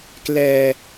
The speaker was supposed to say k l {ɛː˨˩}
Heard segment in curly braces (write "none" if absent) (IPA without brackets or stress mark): ɛː˧